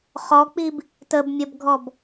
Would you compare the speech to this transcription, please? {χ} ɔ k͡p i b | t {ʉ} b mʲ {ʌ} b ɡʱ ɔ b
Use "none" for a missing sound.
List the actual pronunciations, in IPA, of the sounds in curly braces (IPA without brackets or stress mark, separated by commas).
χ, ə, ʌ